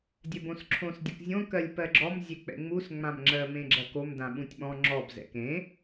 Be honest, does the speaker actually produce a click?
yes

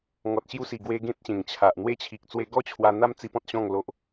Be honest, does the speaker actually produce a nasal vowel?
yes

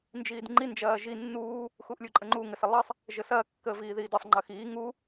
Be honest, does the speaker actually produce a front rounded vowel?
no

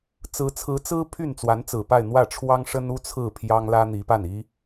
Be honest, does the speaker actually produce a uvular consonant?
no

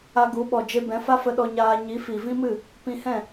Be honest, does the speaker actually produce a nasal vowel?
yes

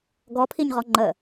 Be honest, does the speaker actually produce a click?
yes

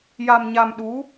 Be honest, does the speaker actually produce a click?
no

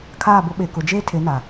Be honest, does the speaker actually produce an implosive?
yes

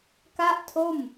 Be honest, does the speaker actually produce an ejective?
no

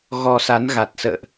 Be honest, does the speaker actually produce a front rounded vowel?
no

